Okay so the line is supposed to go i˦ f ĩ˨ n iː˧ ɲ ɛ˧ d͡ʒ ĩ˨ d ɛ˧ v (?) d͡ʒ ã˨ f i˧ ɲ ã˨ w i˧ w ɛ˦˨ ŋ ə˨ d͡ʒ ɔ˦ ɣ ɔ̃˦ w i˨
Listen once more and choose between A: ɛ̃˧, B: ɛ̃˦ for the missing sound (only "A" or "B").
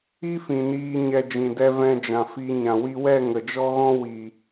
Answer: A